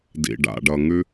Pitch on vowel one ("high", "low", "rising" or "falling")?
low